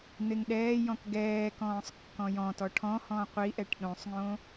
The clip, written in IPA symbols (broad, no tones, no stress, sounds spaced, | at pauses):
n̪ e ŋ ɗ ɛː j ɔ̃ k ɡ ɛː k ɔ̃ː sˤ kː ɔ̃ j ɔ̃ t ɔ ʈʰ ɔ̃ h ɔ̃ qʷ i ʔ ɛ ʈ ɗ õ sˤ ŋ õ